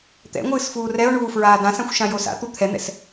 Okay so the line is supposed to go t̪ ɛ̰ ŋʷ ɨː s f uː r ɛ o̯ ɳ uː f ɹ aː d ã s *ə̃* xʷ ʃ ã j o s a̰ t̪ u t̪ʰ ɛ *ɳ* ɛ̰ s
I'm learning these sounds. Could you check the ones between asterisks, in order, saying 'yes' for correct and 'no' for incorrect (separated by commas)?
no, no